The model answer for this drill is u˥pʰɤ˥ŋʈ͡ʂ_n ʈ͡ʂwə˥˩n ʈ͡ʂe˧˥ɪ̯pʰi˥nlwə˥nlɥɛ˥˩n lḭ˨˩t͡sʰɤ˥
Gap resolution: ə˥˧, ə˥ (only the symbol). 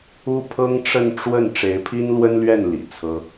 ə˥˧